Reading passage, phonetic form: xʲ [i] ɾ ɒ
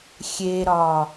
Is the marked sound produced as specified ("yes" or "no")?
no